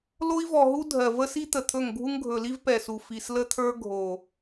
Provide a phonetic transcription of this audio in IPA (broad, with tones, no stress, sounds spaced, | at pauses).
l o˦ i̯ v ɔ˨ ɦ u˦ dʱ ɜ˨ v ə˦ s i˦ t̪ ə˨ t̪ʰ ɵ˦˨ ŋ ɡʱ u˦ ŋ ɡʱ ɵ˨ l i˦ v p ɛ˨ s u˨ f i˨ s l ə˦ t̪ʰ ə˞˦ ɡʱ o˨